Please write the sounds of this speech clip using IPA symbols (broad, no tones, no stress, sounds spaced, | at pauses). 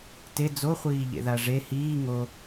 t e d͡z o χʷ iː ʎ ḛ ð a ʐ e h iː ŋ o